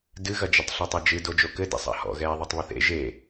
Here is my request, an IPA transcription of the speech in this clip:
dɨɣɐd͡ʒɘtˤ ɬɐtˤɐd͡ʒɨ dod͡ʒokɘ dḭsˤa̰hɔ̰ ɣɛːðˤetˤβɨθḛ ʒe

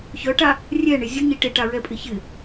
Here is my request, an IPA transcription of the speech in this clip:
çœʈa | rʲɛɳɪ zʲʊɲi ʈɪʈaɹɛpʼɪ çɪ

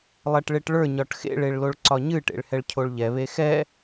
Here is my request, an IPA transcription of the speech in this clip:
lˠɛʈɭeʈɭə˞ ɲɒʈxḛɭ eɭloɭǀɒɲɨ ʈḛɭhɛɭcʰoɭʎɛ βexɛ

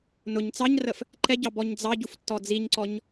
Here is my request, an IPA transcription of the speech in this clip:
nʊɲ t͡sɑɲrəf | ǃɛɟɑ bɔɲd͡zɑɟuf tːɔd͡ziɲǀɔɲ

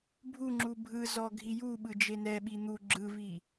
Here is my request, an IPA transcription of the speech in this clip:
bʱuŋ͡ǁu bʱɯzɔ ɡʱijuɓɯ d͡ʒenɛɓi n̪u ɡ͡ǁɯvi

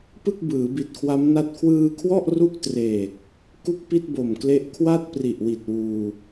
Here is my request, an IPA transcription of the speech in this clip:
pɯ˥˩k̚bɯː˩˦bi˨˩t̚kʰwa˦˥m na˥˩t̚ kʰwɯː˧kʰwɔ˥˩ʔ ru˥˩k̚treː˨˩k̚ | ku˥˩k̚pi˥˩t̚bo˨˩mkle˦˥ʔ kʰwa˥˩t̚ pri˨˩ʔwi˨˩t̚ wuː˧

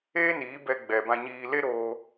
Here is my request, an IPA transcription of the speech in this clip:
eː˦niː˨˦bɛ˧ ɡ͡bɛ˨bã˧ɲiː˧ le˦ɾoː˧

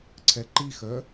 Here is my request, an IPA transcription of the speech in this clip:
ǀʰɛǃixœ

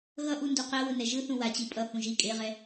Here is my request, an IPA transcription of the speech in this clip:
ɣʌʔu nduqɛwɯ nɛʒɯθũ wat͡ɕi pʼʌhũ ʒi kʼeʁɛ

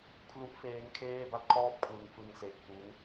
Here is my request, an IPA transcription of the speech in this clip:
kʰlu˦˥ʔfeː˦˥ŋ kʰeː˥˩ba˥˩t̚kʰɔː˥˩p̚ kʰwɯ˦˥ŋ fɯ˧ŋse˨˩ʔ ku˦˥n

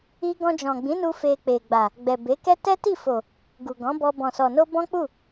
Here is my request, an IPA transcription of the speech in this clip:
i˦ ɡɔ̃˧d͡ʒɔ̃˨ɡ͡bĩ˨˦nu˧ fe˧k͡pe˨ɡ͡ba˨ | ɡ͡bɛ˨ be˨˦kɛ˦ tɛ˦ti˦˨fo˨ | ɡu˨ɡɔ̃˨˦bɔ˧ bɔ̃˨sɔ˨no˧ bɔ̃˦k͡pu˦˨

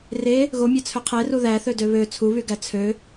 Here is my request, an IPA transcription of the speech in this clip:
re | ɣomʲɑt͡sʰø qʰeru ðæθø døβø t͡sʰuβyɡæ t͡sʰø

